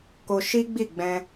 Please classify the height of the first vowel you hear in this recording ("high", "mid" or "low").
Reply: mid